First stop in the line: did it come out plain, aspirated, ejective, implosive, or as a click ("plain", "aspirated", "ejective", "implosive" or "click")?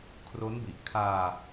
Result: aspirated